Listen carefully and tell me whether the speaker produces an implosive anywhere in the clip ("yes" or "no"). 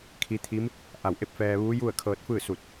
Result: no